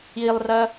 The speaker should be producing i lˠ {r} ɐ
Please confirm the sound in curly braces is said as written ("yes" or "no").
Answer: yes